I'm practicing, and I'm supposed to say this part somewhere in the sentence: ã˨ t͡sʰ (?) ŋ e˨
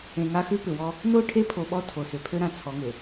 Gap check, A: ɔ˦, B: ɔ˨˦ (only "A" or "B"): B